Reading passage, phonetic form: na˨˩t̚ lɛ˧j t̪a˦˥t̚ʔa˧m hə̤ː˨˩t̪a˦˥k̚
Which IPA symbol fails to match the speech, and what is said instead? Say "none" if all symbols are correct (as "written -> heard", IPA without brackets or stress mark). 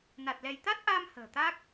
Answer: none